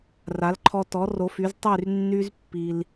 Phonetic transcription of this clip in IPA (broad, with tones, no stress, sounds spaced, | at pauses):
r a˩˥ l ǃʰ ɔ˧ t ɔ˩˥ r o˩˥ f y˩˥ z tˤ y˥˩ r nː y˧ z pː i˩ l